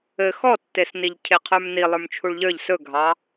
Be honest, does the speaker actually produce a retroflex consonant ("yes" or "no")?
yes